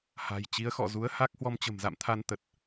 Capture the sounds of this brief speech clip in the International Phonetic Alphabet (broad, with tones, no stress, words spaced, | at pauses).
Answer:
ha̤˨˩jt͡ɕi˨˦ə̯xɔ̰˧˨ zu˨˦ə̯ ha˦˥k̚hwɔ˧m t͡ɕə̤˨˩mza̰˧˨mt̪ʰa˧n t̪ə˨˩t̚